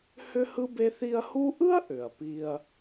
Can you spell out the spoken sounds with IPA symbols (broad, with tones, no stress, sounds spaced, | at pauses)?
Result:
h ʏ˥ h ɯ˥ b e˦ θ i˦ ɐ̯ h u˦ ʔ ɯ˥ ɐ̯ ʔ ʏ˩ ɐ̯ p i˨ ɐ̯